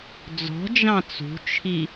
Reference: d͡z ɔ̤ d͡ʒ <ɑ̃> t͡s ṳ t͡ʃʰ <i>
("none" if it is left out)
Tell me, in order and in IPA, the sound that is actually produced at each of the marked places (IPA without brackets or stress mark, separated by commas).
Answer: ɑ̃, i